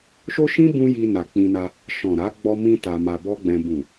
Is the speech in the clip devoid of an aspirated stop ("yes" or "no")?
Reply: yes